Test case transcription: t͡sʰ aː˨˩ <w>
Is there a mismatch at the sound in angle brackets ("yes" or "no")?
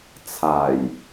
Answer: yes